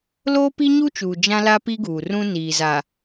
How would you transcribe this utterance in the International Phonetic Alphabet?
loː˦pi˦ɲu˦t͡ʃuː˨ d͡ʒã˦la˦ pi˦ɡuː˨ rũ˦ niː˨za˨

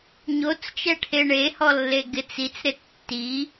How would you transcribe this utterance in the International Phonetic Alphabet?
ɲot͡st͡ʃɛʈʰe ɳehɔlːe ɡɪt͡s it͡sɾɪ tːi

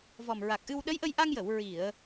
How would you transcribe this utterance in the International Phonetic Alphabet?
vɔ˨˩mɹa˨˩k̚ʔɨ˧w ɗə˧˥jʔə˧jʔa˧ŋjə˨˩˨w ɹi˨˩˨ə̯

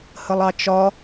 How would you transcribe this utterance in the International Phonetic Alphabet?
həlˠɑt͡ʃɒ

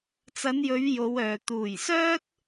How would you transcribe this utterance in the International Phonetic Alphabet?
t͡sɐ˨˧njɵ˨˧ɥ jo˨˧wœː˨ t̪uː˨˩j sœː˥t̚

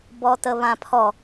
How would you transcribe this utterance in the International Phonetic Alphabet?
bɔtəβãpʰɔ

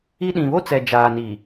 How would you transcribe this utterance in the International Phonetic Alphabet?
i˦ ɗĩ˨βo˦t͡sɛ˨ d͡ʒaː˨ni˨

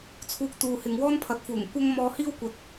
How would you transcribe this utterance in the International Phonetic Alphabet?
t͡sʰuː˧k̚t̪uː˨hɪ˨ŋ wɔː˥npʰɐ˨˥t̚fuː˨˩ŋ kʷɐ˥ŋ mɔː˧hiː˥wkʷɐ˨˥t̚

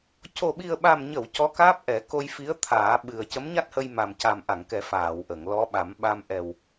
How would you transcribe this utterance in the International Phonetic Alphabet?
co˨˩ɓi˨˩ə̯ɓa˨˩mɲə˨˩˨w cɔ˧˥kaː˦˥p̚ʔɛ˨˩˦ ko˧jfi˧˥ə̯t̪ʰaː˨˩˦ ɓɨ˨˩ə̯cə˧˥mɲa˦˥t̚hə˧j ma˨˩mca˨˩mʔa˨˩˨ŋkɛ˨˩˦ faː˨˩˨wʔə˨˩˨ŋ lɔ˧˥ɓa˨˩˦m ɓa˧m ʔɛ˨˩w

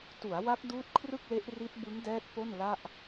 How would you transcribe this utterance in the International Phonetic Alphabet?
tu˩˦a̯wa˦˥k̚ duː˦˥t̚kʰrɯ˥˩k̚le˦˥ʔri˦˥t̚ bɯ˦˥ŋdɛː˦˥t̚ po˥˩nla˥˩ʔ

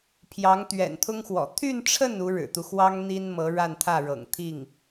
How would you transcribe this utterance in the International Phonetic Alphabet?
pʰjɑ˧˥ŋt̪ɥɛ̰˨˩nt̪ʰʊ˥ŋxwɔ̰˨˩ t̪ʰy˥˧nʈ͡ʂʰə˥˩n u˧˥ɻɻ̩˨˩t̪u˦xwɑ˥ŋ n̪i˥n mɤ˧˥ɻa˥˧nt̪ʰä˥˩ ɻɤ̰˨˩ŋt̪ʰi˥˩ŋ

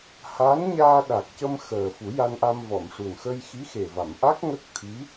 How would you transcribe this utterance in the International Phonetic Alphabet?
ha˧˥n ɲaː˧ɗa˨˩k̚cə˧mxəː˨˩ fu˨˩˦ja˧nʔa˧m vɔ˨˩˨mʂu˨˩n xə˧jxi˧˥ xe˨˩va˨˩˨mʔa˦˥k̚ ŋə˦˥k̚t̪ʰi˧˥

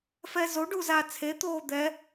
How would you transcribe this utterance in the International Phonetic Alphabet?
fɛzo ɖuzaːt͡sʰe t̪oːd̪ɛ

